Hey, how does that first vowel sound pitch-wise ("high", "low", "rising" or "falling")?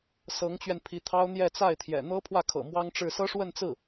rising